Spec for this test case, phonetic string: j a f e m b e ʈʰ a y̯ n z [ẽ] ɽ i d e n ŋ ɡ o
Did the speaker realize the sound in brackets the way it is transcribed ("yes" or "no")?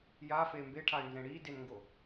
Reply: yes